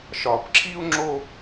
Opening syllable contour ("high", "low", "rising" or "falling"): low